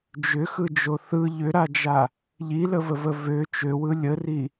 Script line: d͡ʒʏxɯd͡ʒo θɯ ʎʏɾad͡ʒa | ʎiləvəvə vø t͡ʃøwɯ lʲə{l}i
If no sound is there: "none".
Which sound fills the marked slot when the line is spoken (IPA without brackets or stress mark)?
r